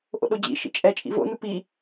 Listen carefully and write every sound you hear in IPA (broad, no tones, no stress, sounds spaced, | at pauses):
ʔ o̰ ɗ o d͡ʑ ḭ ʃ ḭ t͡ʃʼ ɛ t͡ʃʼ ḭ v o̰ n u p i